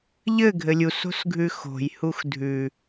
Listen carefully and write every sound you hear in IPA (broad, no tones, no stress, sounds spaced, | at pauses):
ʎ ɘ ɡʱ ɘ lʲ u s o̤ s ɡʱ ʉ x o̤ j h u x dʱ ʉ